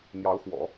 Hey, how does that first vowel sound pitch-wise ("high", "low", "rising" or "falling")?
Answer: rising